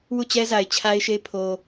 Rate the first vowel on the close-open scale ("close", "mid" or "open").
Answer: close